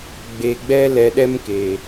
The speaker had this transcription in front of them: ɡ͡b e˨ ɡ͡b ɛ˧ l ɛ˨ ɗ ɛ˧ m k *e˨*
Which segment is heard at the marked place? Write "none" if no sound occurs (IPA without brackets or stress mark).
e˨